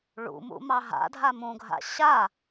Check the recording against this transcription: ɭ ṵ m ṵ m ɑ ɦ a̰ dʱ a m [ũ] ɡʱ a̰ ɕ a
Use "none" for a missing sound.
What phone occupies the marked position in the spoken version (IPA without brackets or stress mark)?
ũ